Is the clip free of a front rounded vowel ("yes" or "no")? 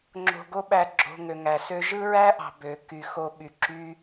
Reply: no